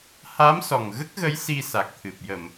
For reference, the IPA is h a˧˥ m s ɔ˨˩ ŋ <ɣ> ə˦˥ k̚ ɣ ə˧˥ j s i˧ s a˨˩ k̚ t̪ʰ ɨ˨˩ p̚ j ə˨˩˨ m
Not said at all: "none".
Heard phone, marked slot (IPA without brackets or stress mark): ɣ